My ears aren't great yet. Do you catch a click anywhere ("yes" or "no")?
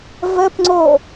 yes